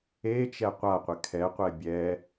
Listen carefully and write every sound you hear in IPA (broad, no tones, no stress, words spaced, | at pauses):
et͡ʃɛ qʷaqʷɪ kʰɛqʷɛ bʲɛ